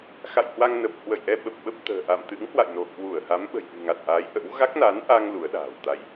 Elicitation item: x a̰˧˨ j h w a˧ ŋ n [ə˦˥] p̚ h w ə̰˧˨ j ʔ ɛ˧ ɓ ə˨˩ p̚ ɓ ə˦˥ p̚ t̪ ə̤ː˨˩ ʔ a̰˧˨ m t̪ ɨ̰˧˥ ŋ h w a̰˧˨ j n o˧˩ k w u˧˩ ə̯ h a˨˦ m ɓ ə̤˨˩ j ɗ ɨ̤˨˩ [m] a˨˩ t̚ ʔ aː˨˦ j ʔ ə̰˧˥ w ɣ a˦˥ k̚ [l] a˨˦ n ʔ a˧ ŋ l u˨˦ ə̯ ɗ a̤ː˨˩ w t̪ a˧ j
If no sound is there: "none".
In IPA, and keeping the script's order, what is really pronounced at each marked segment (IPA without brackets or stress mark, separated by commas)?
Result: ə˨˩, ŋ, n